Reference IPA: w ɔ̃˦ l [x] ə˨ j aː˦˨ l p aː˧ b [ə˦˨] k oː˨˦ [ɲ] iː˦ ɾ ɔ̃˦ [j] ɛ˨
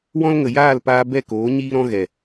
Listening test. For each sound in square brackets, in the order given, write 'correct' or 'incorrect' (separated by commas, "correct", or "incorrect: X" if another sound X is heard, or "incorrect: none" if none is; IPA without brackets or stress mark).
incorrect: ŋ, incorrect: ɛ˦˨, correct, incorrect: ɣ